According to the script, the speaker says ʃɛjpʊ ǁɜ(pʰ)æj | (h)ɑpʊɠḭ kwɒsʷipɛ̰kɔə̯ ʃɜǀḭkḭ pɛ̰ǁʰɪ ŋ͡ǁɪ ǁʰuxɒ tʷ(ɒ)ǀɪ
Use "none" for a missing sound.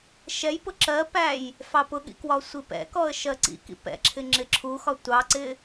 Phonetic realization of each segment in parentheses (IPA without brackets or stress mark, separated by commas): p, f, ɑ